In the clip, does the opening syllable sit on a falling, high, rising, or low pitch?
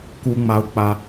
high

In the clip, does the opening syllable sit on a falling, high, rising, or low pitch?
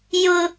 low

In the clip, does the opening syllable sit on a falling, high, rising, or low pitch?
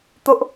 high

